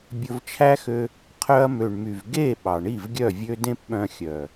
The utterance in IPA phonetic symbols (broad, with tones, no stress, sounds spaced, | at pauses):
bʲ ɵ˧ v t͡ʃʰ æ˦ x ø˧ | qʰ œ˧ ɐ̯ m ø˨ ɳ m y˨ v ɡ e˦˨ ɓ ɑ˨ ɳ i˦˨ v ɡʲ œ˦˨ vʲ ø˦ d ẽ˦ p ɓ œ̃˧ xʲ œ˨